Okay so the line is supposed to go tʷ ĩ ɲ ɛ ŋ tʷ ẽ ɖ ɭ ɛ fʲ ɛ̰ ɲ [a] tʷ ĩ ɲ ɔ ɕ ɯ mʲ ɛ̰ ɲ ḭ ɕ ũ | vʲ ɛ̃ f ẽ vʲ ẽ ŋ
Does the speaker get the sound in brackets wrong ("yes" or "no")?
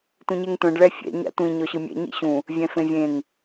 yes